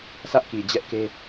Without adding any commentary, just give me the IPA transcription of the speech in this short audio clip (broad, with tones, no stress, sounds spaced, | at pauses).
sʰ ä˦ ʔ k i˨ d͡ʑ ɛ˦ ʔ k e˦